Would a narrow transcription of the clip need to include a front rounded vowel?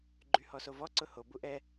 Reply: yes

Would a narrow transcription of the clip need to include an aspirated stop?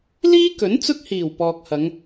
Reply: no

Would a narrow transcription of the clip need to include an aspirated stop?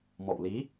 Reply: no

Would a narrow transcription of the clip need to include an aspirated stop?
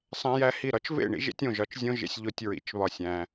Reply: no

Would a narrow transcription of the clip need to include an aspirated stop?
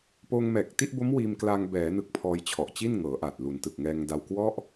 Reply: yes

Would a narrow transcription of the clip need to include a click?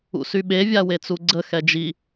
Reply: yes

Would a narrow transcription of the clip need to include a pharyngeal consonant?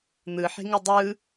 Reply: yes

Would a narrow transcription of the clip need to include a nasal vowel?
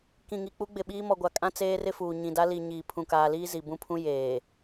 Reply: yes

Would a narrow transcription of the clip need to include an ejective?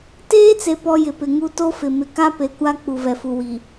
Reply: no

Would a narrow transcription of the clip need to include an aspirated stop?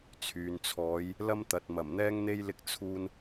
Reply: yes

